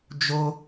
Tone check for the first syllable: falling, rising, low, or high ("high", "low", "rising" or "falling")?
high